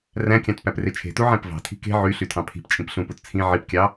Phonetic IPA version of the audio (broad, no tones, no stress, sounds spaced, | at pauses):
r æ̃ kʲ ɑ̃ t p æ p r e t͡ʃʰ e̤ t u ʕ æ̃ p v ɑ̤ tʰ i̤ k e̤ ʕ y ɬ y tʰ ɑ̃ pʰ i̤ p t͡ʃʼ ĩ p ɬ ũ p u t t͡sʰ ĩ ʕ i p kʲ ɑ